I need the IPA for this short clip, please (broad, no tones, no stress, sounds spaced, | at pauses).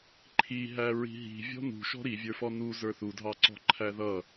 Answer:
ǃʰ i ɦ æ ɹ i̤ ɦ i̤ vʲ ɔ̤ n ṳ ʃ ɔ̤ ɾ i vʲ ə˞ f ɔ n u z ə˞ θ u dʱ ɑ ǀ ɔ̤ ǃʰ æ ð ʌ